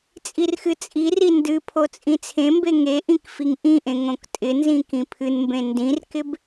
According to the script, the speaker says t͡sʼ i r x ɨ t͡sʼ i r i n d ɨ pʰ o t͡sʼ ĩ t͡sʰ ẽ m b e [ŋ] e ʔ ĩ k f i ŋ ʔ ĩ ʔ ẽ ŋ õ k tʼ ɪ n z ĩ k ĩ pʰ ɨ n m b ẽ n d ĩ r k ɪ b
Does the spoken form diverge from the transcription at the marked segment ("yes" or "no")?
no